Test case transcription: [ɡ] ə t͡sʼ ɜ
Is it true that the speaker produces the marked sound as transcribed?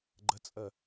no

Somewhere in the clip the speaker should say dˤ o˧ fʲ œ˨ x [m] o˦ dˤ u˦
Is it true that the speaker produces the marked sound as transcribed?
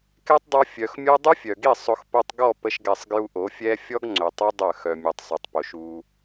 no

